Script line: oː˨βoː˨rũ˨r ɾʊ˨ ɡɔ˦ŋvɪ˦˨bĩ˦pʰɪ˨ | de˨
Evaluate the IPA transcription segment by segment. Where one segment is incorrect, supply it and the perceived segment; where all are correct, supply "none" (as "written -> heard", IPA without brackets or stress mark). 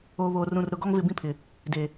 none